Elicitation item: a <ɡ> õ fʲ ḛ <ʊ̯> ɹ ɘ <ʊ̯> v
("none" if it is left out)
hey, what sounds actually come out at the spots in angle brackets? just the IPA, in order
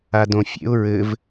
d, ʊ̯, none

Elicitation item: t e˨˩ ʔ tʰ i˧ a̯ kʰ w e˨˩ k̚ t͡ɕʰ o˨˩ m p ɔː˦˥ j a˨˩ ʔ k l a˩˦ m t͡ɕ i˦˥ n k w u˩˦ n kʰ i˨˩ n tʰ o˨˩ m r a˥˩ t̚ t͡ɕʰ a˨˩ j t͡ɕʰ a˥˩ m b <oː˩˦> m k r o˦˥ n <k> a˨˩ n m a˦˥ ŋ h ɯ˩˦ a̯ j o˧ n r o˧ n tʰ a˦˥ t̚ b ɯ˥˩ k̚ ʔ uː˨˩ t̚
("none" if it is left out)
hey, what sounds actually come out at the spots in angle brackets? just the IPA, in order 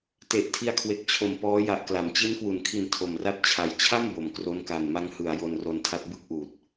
o˩˦, k

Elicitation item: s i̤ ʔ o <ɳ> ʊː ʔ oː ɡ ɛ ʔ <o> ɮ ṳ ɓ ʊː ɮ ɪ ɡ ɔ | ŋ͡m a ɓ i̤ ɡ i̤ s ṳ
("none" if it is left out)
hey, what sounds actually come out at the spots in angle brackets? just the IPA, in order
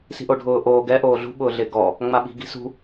ɖʱ, oː

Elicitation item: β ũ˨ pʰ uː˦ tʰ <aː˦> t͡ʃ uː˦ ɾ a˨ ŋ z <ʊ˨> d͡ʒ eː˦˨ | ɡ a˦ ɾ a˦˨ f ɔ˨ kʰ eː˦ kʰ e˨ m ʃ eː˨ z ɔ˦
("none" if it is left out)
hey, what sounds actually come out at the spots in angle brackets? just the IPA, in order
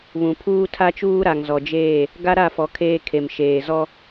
a˦, ɔ˨

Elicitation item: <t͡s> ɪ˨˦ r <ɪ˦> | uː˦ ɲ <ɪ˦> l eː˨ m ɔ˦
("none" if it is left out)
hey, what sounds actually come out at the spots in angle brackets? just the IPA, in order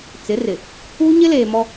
t͡s, ɪ˨, ɪ˦

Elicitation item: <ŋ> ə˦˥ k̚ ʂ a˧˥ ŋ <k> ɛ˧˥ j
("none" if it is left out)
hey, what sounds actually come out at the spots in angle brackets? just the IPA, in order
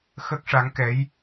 x, k

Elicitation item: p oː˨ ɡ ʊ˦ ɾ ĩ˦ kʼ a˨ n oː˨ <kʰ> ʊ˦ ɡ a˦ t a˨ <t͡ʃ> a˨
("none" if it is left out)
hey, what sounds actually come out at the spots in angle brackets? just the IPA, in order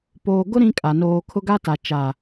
kʰ, t͡ʃ

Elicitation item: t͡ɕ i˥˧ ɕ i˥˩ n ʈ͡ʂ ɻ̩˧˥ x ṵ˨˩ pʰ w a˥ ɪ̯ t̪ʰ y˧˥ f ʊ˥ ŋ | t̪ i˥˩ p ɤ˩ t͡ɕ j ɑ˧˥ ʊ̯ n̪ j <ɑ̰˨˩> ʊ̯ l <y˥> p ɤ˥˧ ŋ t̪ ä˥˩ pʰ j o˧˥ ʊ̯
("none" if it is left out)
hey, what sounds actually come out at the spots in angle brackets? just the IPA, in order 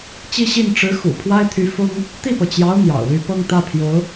ɑ̰˨˩, y˥

